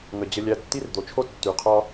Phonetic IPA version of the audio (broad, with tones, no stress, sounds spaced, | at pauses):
ŋ ə˨ d͡ʑ ə˧ lʲ æ˧ tː i˦ r d̪ o˨ t͡ʃʰ o˦ tː y˨ qʰ ɒ˦